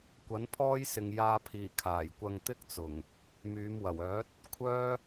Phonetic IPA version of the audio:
kʷ ɐ˨˥ n pʰ ɔː˥ j s ɪ˨ ŋ j aː˧ pʰ iː˨˩ kʰ aː˨˩ j kʷ ɐ˧ ŋ t̪ ɪ˥ k̚ t͡s ʊ˨˩ ŋ | m yː˨˧ m w ɐ˨˩ w œː˨˥ t̚ | kʷʰ œː˥

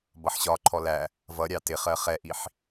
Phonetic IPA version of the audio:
b ʌ ħ ɕ ɒ ǃʰ ɔ l æ | v ʌ ɾʲ ɑ t ɪ χ ɜ χ ɛ ʔ i ħ

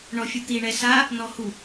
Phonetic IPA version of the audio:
ɳ ɔ fʲ u t̪ i ɳ ɛ s a | n ɔ h u

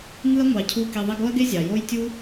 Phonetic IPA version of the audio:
ŋ ɯ˦ ɐ̯ ŋʷ ɑ˨ cʰ u˧ k i˨ ðˤ i˧ ɡ o˦ ɐ̯ ɡ e˦ zʲ ɑ˨ j o˦ j tʲ u˦

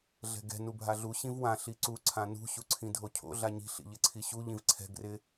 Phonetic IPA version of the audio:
ɮ ɛ̤ ɡ ɛ̤ n u bʱ a ɮ u ɕ ĩ v w ã ɬ i ǀ u ǀʰ ã n ṳ ɕ u ǀʰ ĩ dʱ o cʰ o̰ ɮ a ɲ i̤ ɬ ḭ ʎ ɪ ǀʰ i ɕ u ʎ ĩ v ǀʰ ɛ̤ ɡ r ɪ

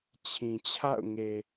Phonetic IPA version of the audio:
t͡ɕʰ ĩ˨ t͡ɕʰ a̰˦˨ ʊ̯ ŋ e˨

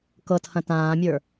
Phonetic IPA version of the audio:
k ɤ tʰ ɐ̃ t ãː mʲ ə˞

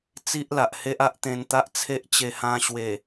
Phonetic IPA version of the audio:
t͡s i˦ ʔ l a˨ ʔ h e˦ ʔ a˦ ʔ t̪ ẽ˧ n t̪ a˦ ʔ t͡sʰ e˦ ʔ t͡ɕ e˧ h ã˧ ɕ w e˨˩

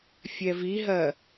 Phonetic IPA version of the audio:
fʲ ɛ v i ɦ ɜ

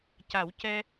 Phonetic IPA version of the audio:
c a˨˩˦ w c ɛ˧

